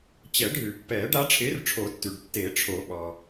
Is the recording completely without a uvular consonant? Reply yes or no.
yes